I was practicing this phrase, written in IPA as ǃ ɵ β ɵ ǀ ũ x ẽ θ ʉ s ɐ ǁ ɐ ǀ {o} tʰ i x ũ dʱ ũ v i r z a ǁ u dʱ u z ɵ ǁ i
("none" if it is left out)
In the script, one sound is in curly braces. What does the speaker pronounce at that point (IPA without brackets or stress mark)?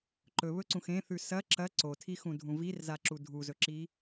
o